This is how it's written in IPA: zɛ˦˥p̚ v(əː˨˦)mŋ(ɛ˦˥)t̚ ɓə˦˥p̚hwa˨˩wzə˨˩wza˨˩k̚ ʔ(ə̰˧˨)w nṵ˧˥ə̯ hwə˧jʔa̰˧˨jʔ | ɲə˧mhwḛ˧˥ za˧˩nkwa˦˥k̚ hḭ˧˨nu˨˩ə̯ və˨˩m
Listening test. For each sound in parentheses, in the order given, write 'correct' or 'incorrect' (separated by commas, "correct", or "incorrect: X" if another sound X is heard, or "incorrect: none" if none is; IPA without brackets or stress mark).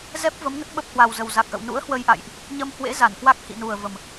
incorrect: ə˨˦, incorrect: ə˦˥, correct